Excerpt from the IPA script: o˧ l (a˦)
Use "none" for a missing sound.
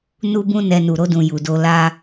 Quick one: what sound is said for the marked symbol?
a˦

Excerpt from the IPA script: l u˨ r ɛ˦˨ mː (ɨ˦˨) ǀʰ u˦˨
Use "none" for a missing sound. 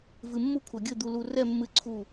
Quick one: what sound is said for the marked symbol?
ɨ˦˨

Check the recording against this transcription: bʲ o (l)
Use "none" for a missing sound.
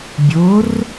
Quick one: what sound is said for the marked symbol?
r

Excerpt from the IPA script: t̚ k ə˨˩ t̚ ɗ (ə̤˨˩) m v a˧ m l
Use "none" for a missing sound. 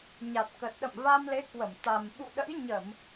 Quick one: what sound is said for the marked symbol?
ə̰˧˨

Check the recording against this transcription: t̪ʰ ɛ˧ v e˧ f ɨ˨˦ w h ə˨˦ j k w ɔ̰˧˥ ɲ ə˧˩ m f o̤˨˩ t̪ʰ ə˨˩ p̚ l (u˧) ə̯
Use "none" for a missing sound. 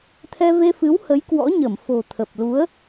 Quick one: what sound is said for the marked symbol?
u˨˦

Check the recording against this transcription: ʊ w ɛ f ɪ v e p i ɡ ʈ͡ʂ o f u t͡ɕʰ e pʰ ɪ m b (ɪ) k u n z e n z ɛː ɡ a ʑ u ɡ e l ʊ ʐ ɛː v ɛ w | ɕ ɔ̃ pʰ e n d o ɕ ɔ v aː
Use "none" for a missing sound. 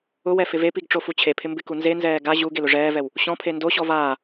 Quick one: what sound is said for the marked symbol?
ɪ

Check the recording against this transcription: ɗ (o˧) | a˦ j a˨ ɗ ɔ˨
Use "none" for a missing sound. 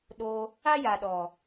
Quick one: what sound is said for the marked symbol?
o˧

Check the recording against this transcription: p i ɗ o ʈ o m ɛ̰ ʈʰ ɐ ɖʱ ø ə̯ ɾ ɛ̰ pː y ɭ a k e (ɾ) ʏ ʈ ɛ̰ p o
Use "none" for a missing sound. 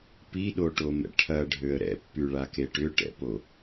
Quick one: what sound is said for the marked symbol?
ʈ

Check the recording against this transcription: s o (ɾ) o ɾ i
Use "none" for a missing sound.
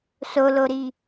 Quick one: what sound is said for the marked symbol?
l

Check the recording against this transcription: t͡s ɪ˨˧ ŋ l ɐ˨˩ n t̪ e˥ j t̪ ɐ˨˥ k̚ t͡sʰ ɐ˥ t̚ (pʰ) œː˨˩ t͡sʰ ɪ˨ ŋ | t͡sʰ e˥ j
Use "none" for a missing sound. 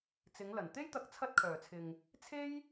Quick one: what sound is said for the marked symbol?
kʰ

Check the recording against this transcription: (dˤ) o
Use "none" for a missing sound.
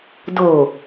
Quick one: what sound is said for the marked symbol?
d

